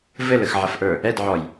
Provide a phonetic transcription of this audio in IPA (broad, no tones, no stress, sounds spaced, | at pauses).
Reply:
v ɘ l ə x ʕ ɐ f ʔ ə˞ | ɛ d ʕ ɔ j